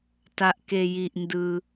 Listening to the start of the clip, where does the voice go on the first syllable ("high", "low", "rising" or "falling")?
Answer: low